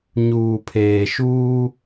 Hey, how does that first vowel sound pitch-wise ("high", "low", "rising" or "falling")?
low